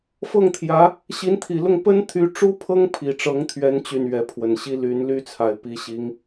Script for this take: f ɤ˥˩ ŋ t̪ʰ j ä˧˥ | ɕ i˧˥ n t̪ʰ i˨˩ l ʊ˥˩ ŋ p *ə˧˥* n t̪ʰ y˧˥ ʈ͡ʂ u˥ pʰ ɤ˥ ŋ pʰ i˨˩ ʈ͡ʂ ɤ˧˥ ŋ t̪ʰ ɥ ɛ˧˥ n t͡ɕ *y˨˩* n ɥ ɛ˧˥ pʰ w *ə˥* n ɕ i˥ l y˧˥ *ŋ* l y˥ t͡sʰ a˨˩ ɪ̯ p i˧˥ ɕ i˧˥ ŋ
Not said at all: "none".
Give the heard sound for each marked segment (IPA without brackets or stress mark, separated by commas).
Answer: ə˥, y˨˩, ə˨˩, n